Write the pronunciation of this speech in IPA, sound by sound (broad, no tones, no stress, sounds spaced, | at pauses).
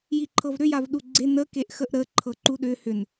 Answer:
j i ǃʰ ɤ v ɾ ʏ j a v ɗ u ɡ͡ǀ e n ə k e ʔ x ə ʔ ɾ ə ǃʰ ɤ ǃ u ɗ ʏ h ʏ n